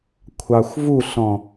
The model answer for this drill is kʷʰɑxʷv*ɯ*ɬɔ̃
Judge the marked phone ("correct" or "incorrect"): incorrect